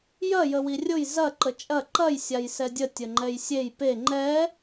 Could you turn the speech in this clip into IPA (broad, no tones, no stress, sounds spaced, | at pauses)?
j ɐ j ə w i rʲ ʊ j z ɐ ǃ ə t͡ʃʼ ɐ ǃ ɐ j sʲ a j s ɛ dʲ ə tʲ ə ŋ͡ǃ ɛ j sʲ e j p e ŋ͡ǃ ɛ